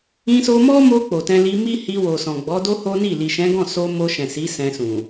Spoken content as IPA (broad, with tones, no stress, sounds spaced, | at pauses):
ĩ˧ s o˧ m ɔ˦ m o˧ k͡p o˨ t ɛ̃˧ l i˧ m i˦ h i˧ w o˨ s ɔ̃˨ ɡ͡b ɔ˨˦ d o˦ h o˦ n i˦˨ l i˨ ʃ ɛ̃˨˦ ɡ ɔ̃˦˨ s o˧ m o˧ ʃ ɛ̃˨ s i˨˦ s ɛ̃˧ s ũ˨